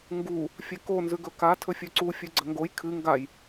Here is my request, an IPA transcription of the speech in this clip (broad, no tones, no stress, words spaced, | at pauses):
ŋɡu | fʲeko nzʉɡɵka tʰɵfʲʉǀu fʲʉɡ͡ǀɐŋɡoj kʰɨ ŋɡaj